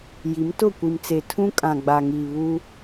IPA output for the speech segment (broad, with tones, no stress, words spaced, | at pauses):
ji˨˦mtʊ˦˨kʷi˨mt͡se˨ tʰũ˦kʼã˨ ɡ͡ba˨ŋiː˨βu˦